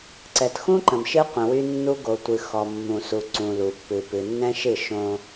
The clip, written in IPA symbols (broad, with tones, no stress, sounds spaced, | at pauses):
ǀ ɛ˨ t x ũ˦ ǃ ə̃˨ m ʃ ɨ˦ qʷ ə̃˨ w y˦ nː u˦ ɡ o˨ tʷ ɨ˨ x ɔ˨ mː ũ˨ s u˨ ǀ ũ˨ l u˨ pː ɨ˨ p ɨ˨ nː ɛ̃˦ ʃ ɨ˦˨ ʃ õ˦